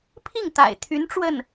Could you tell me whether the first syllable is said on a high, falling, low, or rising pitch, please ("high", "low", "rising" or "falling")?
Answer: falling